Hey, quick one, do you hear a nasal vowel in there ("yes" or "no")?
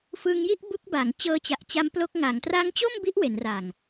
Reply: no